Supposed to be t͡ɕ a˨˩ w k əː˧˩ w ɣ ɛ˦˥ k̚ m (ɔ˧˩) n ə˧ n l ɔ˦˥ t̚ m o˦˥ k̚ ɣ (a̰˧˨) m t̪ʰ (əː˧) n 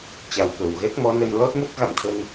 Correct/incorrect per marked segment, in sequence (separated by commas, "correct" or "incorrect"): incorrect, correct, incorrect